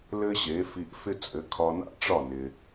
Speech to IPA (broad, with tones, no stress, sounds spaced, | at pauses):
l ɘ˥ ɕ e˩˥ f i˧ ʔ f ɪ˥ t͡sʼ ɘ˩˥ kʰ ɒ˧ n a̰˥ ʈ͡ʂ ɒ˥˩ n ɪ˩